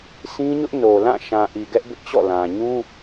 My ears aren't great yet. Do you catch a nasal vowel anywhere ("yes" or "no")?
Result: yes